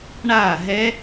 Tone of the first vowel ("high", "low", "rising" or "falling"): falling